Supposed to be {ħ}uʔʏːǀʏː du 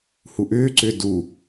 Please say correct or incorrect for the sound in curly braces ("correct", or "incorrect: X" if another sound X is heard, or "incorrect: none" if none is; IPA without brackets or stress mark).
incorrect: h